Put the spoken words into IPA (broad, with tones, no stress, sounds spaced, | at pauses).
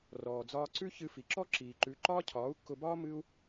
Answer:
r ɔː˨ d͡z ɒː˧ ǀ ʉ˦ ç ɨ˧ f i˨ ǁ ɔ˦ ǁ iː˨ ǃ ʉ˨˦ ǃ ɒː˦ cʰ ɒː˨˦ u̯ kː ʊ˧ b ɒː˦ m ɨ˦ u̯